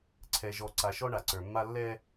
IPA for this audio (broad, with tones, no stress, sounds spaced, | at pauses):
ǀʰ ɛ˨ ʒ ɔ˨ ǀ a˨ ʃ ɔ˦ ɳ a˨ ǀ ə˞˨ mː a˦ lː ɛ˦